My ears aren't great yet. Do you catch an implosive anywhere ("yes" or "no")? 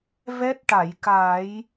no